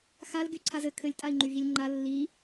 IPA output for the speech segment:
x a l ɡ y ǀʰ a z ɘ kʰ ɘ lʲ tʼ a i̯ ŋ͡ǃ y ɣ i lʲ ŋ͡ǃ a lː i

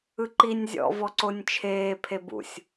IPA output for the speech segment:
ɯ ǃ i nʲ zʲ ɔ̰ v ɔ ǀ o nʲ t͡ʃʰ eː pʰ e b ṵ sʲ

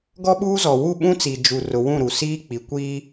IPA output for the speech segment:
ɡ ɔ˦ ɓ uː˦ z ɔ˨ w u˦˨ ɓ ũ˦ t͡s i˨ d͡ʒ u˨ r ʊ˨ w ũ˦˨ ɾ u˨ s iː˦ k͡p i˨ kʷ iː˦

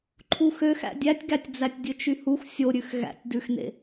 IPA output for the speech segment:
ǃʰ u x ø x æ̰ dʲ æ tʲ ɡ æ tʲ d͡z æ tʲ dʲ ɵ t͡ʃ y h u x sʲ o ɾʲ ʉ x ɣ æ̰ tʲ d ʉ x n ḛ

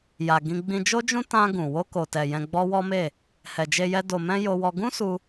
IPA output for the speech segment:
j a˨ ɡ ĩ˧ ɡ͡b ĩ˧ d͡ʒ o˦ d͡ʒ ũ˦ t ã˧ ɡ ũ˨ w o˧ k o˨ t ɛ˨ j ɛ̃˧ ɡ͡b ɔ˦ w ɔ˦ m e˦˨ | h ɛ˨ d͡ʒ e˧ j ɛ˧ d o˨ m ɛ̃˧ j o˧ w ɔ˧ ɡ ũ˦ s u˧

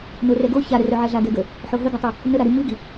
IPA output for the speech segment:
n o r ɛ ɡ o ç a ɾ ə r œ ʕ ɛ ɮ a ɡ ɛ ɡ ə | ħ o ɦ ə ɡ a tˤ i | n ə ɾ a ɾ i m i ɡ i

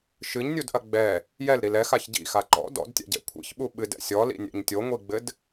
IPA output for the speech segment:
ʃ ɨ ɲ nʲ u d ʔ ɐ ɡ͡b ɛ | j ɛ l ɾ i l ɛ x a ç ɟ ḭ x a ǃ ɔ̰ d ɔ̰ d tʲ a̰ ɟ ɛ̰ kʷʰ ḭ ç ɓ u ɓ ɨ d ɛ̰ sʲ ɔ l ḭ nʲ ɛ̰ ɲ tʲ o ŋʷ i ɡ͡b ɘ d

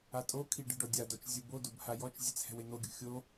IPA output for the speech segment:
a tʼ o kʰ i ɖ ɨ ɖ ɔ dʲ a d ɔ t͡ʃ zʲ u b o d o b h a j ɔ t͡ʃ zʲ e t͡s h ɛ̤ w e n̪ o ɡʲ ṳ xʲ o

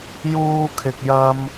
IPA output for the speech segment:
j uː˥ kʰ ɪ˧ k̚ j ɐ˥ m

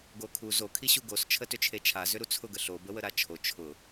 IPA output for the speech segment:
ɡ o kʰ u z o kʰ i ɕ u ɡ o s t͡ʃʰ ə t ʏ t͡ʃʰ e t͡ʃʰ a z ʏ ɾ u t͡sʰ ʊ ɡ ə ɬ o b ə w ə ɾ a t͡ʃʰ o t͡ʃʰ ʊ

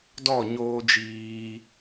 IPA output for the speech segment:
d ɔ˦˨ ɲ oː˦ d͡ʒ iː˧

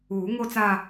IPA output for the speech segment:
uː˨˩˦ ŋ o˥˧ t͡s a˥˧

